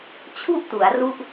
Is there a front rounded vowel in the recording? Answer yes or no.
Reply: no